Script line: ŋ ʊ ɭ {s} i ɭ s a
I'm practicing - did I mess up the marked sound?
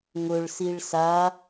no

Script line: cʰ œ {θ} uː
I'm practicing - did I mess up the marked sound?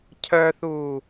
no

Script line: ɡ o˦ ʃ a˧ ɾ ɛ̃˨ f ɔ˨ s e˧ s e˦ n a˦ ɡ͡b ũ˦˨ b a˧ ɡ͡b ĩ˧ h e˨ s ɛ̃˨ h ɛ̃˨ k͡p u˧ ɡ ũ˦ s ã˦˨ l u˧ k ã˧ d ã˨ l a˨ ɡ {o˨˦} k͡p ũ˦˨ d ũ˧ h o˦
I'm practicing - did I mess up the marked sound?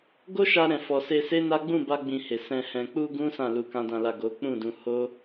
no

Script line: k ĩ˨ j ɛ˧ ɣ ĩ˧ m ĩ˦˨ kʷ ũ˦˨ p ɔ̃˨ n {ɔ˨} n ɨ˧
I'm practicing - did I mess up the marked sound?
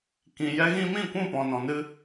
yes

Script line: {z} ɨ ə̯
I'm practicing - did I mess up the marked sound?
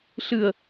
yes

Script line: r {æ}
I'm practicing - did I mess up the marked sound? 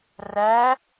no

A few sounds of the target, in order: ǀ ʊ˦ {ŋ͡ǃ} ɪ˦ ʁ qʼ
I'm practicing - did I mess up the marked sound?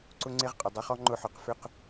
yes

